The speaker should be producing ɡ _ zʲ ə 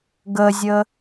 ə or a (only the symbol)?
ə